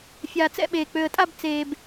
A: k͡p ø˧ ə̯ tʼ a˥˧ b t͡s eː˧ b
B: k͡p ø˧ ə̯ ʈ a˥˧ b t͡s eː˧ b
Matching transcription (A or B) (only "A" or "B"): A